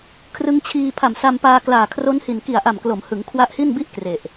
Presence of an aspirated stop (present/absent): present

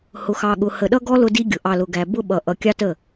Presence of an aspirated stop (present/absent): absent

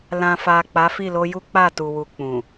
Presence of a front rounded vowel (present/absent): absent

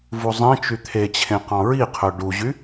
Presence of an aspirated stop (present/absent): present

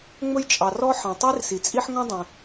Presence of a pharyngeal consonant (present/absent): present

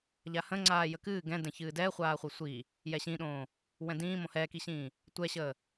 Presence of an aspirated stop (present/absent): absent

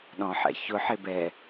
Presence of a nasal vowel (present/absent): present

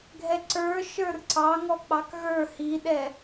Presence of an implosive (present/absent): present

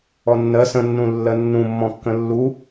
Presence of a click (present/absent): absent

